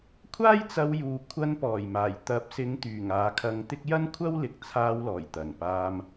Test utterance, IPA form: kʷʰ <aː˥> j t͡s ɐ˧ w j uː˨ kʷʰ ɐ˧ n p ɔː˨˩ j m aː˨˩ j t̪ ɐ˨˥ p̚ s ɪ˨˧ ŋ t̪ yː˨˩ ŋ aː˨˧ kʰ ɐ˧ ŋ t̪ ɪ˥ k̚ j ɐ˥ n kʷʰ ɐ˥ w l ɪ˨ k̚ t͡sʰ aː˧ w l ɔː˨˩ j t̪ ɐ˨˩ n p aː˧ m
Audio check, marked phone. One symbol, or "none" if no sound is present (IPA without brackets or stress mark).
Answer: aː˥